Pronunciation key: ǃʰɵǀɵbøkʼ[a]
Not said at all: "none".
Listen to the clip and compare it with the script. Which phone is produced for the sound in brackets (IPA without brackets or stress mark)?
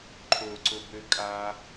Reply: a